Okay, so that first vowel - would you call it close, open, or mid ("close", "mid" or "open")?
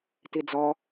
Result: close